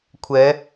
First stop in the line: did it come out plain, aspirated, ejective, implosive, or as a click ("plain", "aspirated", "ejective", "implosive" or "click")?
aspirated